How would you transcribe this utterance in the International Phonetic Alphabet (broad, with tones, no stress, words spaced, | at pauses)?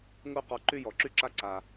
ŋu˦˨qɔ˧ ǃy˦jɔ˨ǁy˦ǁa˦ ǀa˨